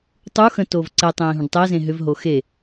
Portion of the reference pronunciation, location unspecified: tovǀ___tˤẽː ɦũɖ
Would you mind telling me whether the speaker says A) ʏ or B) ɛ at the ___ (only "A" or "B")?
B